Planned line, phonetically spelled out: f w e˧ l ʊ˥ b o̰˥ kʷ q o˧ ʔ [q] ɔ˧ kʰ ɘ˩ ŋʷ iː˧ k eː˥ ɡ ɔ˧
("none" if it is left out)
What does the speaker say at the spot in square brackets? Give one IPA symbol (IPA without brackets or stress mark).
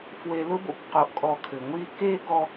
kʼ